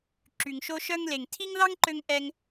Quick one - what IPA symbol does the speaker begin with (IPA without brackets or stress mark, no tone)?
ǁ